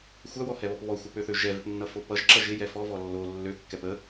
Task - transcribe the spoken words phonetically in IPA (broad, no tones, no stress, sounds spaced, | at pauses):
xʷ æ w ɔ h ɛ β ɔ p β ɔ xʷ ʌ p ø θ ø ʒ ɛ v ɪ p nː ʌ f o p ʌ ʒ ǁ ʌ ʒ ɪ j ɛ f ɔ v ɔ lː o lː ø kː ɛ p ə